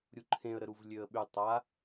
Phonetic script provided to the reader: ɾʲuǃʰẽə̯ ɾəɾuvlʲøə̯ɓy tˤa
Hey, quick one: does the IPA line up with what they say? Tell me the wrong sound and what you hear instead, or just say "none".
none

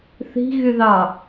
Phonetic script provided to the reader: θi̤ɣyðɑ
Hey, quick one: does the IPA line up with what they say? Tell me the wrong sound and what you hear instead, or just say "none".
none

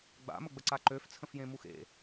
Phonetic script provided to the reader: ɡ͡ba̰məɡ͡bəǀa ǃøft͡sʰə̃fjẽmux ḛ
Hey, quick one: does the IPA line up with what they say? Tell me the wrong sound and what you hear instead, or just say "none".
none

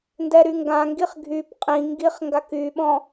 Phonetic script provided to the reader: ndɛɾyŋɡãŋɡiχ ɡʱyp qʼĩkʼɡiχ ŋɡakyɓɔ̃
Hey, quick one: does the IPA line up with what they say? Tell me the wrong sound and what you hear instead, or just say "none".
kʼ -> ŋ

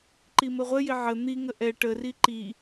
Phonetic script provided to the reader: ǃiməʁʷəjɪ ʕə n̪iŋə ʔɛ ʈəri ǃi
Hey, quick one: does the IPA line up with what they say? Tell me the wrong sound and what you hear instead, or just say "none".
none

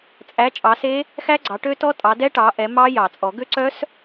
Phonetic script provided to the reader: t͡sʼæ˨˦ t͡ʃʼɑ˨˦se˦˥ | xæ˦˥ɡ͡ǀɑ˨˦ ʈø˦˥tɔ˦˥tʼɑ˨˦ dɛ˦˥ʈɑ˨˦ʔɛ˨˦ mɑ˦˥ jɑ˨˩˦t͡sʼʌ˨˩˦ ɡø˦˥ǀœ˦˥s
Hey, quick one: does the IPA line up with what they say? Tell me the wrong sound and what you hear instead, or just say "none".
ʌ˨˩˦ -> ɔ˨˩˦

